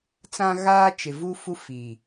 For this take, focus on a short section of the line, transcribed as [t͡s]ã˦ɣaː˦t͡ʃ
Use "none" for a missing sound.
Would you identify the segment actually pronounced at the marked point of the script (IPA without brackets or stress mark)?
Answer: t͡s